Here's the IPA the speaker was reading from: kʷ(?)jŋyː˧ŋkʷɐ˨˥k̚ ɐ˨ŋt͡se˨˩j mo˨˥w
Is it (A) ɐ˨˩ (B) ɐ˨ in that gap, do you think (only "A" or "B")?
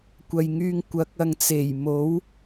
B